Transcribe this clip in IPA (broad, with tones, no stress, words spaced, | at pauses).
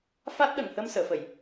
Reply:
fa˦˥t̚ɗə˨˩˨ŋhə˧m səː˨˩˨fə˨˩˨j